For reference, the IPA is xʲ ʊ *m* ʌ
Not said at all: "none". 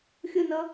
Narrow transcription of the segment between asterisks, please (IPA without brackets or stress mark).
n